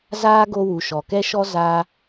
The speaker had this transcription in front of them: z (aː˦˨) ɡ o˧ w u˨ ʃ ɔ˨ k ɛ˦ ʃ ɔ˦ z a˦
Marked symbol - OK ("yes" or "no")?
no